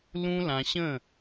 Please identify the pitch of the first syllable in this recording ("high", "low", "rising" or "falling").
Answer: high